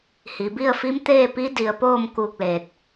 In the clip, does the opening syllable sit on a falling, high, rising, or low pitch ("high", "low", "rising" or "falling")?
low